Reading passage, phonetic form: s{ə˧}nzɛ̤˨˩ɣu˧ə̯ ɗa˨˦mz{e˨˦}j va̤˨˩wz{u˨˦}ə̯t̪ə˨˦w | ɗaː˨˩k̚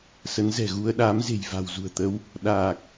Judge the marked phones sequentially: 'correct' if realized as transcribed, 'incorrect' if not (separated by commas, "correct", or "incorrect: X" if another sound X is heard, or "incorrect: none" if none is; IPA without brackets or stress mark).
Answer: incorrect: ə˨˦, incorrect: e̤˨˩, incorrect: ṳ˨˩